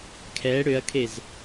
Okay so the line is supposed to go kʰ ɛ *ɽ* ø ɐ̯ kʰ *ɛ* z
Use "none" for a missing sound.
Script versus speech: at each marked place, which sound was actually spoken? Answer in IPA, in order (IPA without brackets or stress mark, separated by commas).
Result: ɽ, e